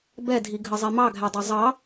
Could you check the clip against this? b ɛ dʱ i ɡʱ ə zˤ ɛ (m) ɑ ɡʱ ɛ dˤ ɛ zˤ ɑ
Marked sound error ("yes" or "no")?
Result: no